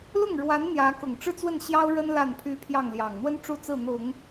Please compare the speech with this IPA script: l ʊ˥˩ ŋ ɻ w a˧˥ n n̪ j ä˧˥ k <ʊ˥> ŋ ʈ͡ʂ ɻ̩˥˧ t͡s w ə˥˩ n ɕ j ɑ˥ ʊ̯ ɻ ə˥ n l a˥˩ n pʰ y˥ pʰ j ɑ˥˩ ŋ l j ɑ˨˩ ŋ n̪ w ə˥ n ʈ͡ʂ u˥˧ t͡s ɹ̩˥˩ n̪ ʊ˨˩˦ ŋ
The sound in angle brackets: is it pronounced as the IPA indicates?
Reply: no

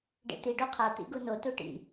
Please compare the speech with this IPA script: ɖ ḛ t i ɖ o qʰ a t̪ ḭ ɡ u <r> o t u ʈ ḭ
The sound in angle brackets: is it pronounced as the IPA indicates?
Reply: no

